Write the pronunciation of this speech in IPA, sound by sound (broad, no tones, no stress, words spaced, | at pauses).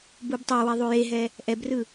bubtˤɛwe ðˤujeɦɛ | ʔɛbrɯ